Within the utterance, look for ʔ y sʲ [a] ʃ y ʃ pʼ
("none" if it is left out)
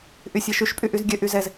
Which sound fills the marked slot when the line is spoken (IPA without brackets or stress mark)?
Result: a